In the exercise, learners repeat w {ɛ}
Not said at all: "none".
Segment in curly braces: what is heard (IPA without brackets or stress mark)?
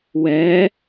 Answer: ɛ